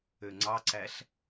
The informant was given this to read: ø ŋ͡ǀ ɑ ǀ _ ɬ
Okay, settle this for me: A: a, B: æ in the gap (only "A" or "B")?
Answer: B